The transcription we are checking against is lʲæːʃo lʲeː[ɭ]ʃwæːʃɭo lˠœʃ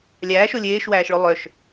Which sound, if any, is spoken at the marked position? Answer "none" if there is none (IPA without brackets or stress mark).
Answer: none